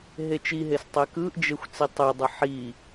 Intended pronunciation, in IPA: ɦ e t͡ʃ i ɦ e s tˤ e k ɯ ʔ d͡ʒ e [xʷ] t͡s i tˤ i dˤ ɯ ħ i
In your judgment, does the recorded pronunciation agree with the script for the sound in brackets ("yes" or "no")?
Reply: yes